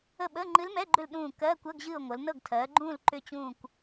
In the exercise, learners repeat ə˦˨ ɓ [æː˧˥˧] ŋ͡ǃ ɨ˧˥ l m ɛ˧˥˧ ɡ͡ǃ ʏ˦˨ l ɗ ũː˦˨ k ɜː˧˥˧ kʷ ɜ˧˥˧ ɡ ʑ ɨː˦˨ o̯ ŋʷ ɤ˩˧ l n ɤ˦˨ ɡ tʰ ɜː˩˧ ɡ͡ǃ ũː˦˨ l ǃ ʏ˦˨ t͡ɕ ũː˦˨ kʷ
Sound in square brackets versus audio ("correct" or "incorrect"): incorrect